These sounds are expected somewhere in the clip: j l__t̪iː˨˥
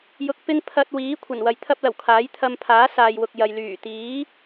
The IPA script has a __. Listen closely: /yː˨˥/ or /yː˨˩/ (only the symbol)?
yː˨˩